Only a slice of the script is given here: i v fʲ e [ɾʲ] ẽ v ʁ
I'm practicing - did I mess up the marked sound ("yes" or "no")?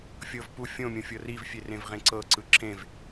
yes